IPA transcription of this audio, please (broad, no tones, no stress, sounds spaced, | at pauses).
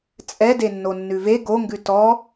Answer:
t͡sʼ ɛ d e nː o nː ʉ v e ɡ o ŋ ɡ ʉ t ɔ